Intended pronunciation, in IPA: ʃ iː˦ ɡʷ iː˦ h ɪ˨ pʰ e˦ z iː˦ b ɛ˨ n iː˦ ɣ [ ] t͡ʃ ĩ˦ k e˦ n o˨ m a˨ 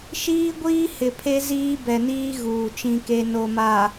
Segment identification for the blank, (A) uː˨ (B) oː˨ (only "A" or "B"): A